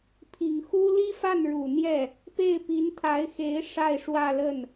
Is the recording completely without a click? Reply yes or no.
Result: yes